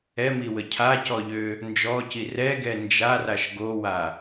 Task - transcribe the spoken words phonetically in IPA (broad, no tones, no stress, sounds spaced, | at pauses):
ɛ m i w ə cʰ a c ɔ ʎ ø | n d͡ʒ ɔ c i r ɛ ɡ ɛ n d͡ʒ a r a ʃ ɡ o w a